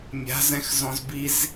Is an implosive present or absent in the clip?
absent